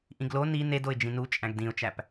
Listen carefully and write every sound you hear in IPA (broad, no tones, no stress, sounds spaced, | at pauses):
ʔ ĩ ɡ l o n i n e d o ɪ̯ d͡ʒ ĩ n u t͡ʃʼ æ̃ ɡ d ĩ ʊ̯ t͡ʃ æ p